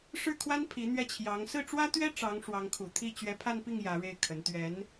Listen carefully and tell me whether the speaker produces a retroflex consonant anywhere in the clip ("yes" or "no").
yes